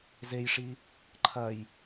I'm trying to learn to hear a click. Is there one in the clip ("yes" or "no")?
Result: yes